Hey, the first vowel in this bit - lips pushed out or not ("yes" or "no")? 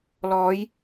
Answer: yes